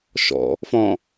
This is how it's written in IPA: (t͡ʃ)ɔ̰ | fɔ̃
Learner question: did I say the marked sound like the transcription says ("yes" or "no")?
no